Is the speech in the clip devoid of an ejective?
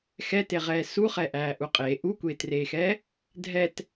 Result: no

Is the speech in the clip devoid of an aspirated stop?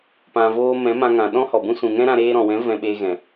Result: yes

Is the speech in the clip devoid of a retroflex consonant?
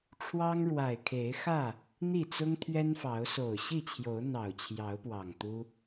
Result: no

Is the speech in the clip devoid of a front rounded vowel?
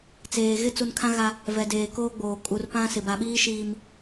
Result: yes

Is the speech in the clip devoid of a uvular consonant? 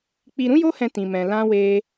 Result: yes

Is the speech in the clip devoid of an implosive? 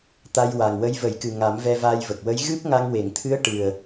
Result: yes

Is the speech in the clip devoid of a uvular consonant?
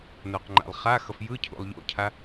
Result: no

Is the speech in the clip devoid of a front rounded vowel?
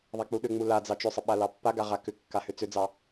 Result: no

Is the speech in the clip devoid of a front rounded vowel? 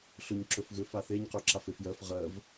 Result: no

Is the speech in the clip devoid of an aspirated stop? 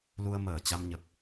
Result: yes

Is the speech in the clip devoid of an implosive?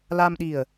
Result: no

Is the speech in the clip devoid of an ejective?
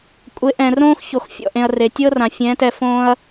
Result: no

